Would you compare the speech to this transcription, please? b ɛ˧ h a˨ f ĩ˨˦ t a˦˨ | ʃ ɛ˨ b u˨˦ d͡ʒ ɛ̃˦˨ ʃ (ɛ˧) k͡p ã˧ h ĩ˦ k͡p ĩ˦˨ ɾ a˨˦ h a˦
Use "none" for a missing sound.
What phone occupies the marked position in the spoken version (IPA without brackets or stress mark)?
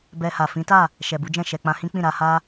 ɛ˨